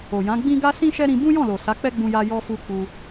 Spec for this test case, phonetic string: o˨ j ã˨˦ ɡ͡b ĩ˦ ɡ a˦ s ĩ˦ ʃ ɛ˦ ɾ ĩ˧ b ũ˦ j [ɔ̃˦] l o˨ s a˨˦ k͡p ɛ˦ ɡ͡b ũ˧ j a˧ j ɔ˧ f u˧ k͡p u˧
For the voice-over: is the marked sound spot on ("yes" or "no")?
no